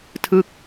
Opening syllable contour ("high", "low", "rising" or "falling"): falling